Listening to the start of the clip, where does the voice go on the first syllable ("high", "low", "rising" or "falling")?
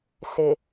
low